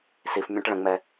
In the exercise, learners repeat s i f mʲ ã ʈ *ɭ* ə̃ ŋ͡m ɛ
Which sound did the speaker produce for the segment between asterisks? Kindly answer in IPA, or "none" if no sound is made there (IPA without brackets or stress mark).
ɭ